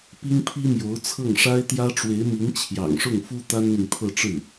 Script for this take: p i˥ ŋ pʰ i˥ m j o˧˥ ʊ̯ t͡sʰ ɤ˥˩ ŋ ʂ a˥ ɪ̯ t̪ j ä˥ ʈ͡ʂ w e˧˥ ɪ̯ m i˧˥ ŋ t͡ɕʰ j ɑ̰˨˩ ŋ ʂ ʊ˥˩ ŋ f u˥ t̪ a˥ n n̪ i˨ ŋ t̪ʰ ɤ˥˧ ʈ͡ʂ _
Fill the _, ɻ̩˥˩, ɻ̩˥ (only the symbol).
ɻ̩˥˩